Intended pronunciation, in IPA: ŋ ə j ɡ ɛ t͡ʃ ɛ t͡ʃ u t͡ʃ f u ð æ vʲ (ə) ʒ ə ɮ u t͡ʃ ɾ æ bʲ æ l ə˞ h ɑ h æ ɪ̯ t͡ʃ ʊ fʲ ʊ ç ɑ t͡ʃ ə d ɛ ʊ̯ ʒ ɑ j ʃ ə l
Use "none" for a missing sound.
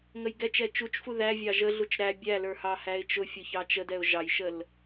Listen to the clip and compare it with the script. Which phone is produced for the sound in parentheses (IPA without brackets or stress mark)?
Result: ɑ